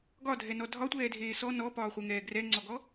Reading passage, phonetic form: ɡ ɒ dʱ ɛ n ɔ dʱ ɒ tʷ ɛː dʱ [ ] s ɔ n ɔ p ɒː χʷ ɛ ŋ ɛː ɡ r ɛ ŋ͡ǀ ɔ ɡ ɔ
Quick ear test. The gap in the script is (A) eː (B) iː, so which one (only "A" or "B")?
A